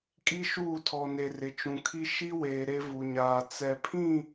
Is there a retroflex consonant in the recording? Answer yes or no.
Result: no